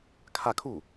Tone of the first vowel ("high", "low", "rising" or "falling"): falling